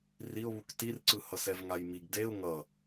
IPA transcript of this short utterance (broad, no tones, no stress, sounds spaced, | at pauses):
r i ʊ̯ β u k t i r ǀ ɯ h ʌ s ɛ v ŋ a j m i ɡ d e ʊ̯ ŋ ʌ